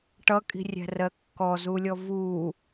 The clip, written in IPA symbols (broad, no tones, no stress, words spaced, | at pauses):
ʈʌkʼi̤rʲæ̤rɜ kːɔzulʲɔ vu